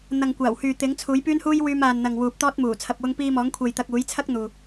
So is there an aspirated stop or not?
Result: yes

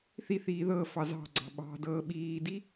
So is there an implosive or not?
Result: yes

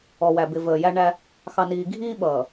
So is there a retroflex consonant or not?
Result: yes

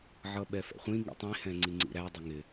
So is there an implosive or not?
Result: yes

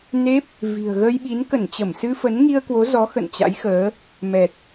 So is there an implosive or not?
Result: yes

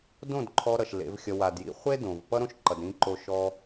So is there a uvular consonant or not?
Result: yes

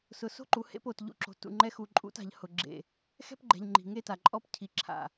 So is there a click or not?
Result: yes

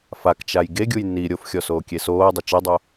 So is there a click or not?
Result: no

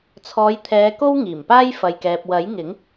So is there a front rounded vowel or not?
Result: no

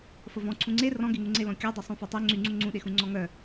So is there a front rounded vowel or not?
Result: yes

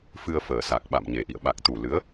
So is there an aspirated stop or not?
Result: no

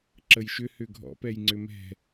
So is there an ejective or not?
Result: no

